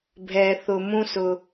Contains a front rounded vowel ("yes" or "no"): no